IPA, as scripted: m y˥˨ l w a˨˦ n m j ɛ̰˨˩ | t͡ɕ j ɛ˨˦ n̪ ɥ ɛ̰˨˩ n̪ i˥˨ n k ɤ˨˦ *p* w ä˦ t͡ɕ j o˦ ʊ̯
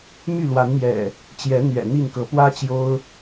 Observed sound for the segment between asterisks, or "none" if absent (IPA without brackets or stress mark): p